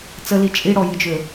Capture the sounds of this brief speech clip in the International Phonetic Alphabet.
t͡s ə l i t͡ʃʼ i ɽ ɔ j ɨ d͡ʒ ø

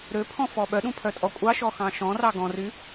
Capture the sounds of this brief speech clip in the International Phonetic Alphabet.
ɾ ø pʰ ɔ̃ f ɔ ɓ œ ɗ ũ pʰ œ tʼ ɔ kʷʼ ɑ ʃ ɔ x ɑ̃ ʃ ɔ̃ r ɑ ɡ ɔ̃ r y

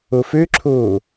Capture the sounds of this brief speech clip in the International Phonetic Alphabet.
u f ʉ ǁʰ uː

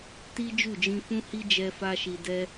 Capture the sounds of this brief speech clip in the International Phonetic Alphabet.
t i˦ d͡ʒ u˦˨ d͡ʒ ĩ˧ f ũ˦ h i˦ d͡ʒ ɛ˧ f a˧ ʃ i˨ d ɛ˧

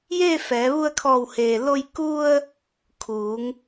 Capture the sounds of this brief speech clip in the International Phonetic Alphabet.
j eː˥˨ f ɛː˩˧ ʋ u˧ ə̯ kʰ ɔː˧˩ w h eː˩ l o˧ j k u˧ ə̯ | kʰ uː˩˧ ŋ

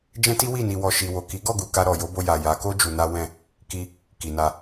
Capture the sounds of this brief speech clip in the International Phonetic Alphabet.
d͡ʒ ɛ̃˦ t i˦ w i˦˨ n i˧ w ɔ˧ ʃ i˧ w o˨ k i˨˦ ɡ ɔ˦˨ ɡ u˨ k a˧ ɾ ɔ˨ j o˨˦ b o˧ j a˨ j a˨˦ k o˦ d͡ʒ u˧ n a˦ w ɛ̃˦˨ | k i˧ | k i˨ n a˧

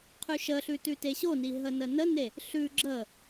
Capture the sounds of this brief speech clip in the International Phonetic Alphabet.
qʰ ʉ ʃ ə ɬ ʉ t ʉ t e ɕ o n i ɦ ə n ə n ə n e | ɬ ʉ ɡ͡ǁ ə

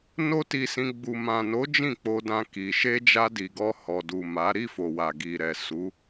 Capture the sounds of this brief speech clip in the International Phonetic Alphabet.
n o˦ t i˧ s ĩ˧ ɡ͡b u˨ m ã˨ n o˨˦ d͡ʒ ĩ˦˨ k͡p o˧ d ã˧ k i˨ ʃ e˧ d͡ʒ a˧ d i˨ ɡ ɔ˧ h ɔ˨ d u˨ m a˨˦ ɾ i˦˨ f o˨ w a˨ ɡ i˨ ɾ ɛ˨ s u˨˦

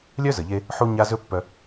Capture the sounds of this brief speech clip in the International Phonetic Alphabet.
lʲ œ˥ z ə˩ ʎ e˧ | ħ u˥ ɲ a˥ z ɵ˥ pː œ˧

